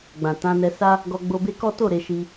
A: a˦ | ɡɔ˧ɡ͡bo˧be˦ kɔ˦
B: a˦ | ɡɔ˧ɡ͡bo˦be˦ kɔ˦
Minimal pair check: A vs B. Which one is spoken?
A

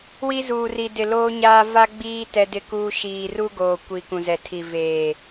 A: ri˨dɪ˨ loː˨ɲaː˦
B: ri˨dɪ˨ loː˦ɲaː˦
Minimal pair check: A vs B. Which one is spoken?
B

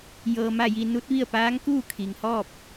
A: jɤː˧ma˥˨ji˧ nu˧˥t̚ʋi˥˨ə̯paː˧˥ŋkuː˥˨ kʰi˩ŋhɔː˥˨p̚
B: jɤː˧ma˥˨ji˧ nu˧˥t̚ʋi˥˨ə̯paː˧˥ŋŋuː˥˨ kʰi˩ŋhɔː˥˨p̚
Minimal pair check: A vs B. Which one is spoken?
A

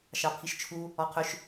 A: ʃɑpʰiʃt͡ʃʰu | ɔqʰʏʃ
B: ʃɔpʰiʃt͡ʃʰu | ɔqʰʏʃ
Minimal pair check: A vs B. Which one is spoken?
A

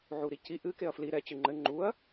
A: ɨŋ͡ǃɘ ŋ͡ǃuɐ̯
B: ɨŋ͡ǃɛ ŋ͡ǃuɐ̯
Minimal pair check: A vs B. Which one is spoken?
A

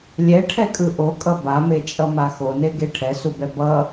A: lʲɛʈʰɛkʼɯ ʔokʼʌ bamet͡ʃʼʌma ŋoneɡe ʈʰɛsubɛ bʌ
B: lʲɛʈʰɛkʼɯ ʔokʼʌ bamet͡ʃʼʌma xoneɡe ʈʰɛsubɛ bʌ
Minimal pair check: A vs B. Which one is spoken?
B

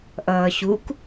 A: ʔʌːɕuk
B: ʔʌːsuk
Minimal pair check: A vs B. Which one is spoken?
A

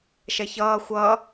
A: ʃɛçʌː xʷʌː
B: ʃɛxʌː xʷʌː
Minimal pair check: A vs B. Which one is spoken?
A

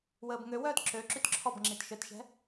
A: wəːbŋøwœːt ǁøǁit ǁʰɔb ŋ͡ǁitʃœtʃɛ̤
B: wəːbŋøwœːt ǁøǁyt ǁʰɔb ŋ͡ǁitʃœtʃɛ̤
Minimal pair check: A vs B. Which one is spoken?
B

